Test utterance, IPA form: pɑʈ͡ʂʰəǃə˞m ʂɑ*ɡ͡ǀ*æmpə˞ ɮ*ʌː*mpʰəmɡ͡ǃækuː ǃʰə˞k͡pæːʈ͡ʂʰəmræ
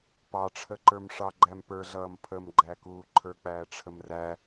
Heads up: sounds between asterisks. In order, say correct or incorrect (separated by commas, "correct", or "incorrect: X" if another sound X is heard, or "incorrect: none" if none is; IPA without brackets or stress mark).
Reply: incorrect: ɡ͡ǃ, correct